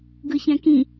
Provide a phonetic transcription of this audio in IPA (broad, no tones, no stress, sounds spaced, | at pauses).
ɡ ɯ ç ɛ̃ k ĩ